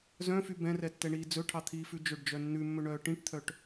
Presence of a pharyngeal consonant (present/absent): absent